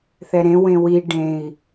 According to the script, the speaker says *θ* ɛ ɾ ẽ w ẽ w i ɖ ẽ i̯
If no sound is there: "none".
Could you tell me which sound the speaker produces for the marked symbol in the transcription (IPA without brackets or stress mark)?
θ